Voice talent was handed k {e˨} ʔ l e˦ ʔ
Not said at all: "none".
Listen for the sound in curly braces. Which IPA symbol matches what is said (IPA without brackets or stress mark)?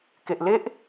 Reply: e˨